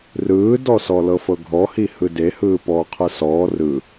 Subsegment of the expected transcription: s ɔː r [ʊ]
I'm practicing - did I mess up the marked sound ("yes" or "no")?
yes